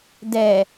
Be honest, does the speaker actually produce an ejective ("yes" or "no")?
no